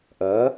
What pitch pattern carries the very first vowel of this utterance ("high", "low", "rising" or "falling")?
rising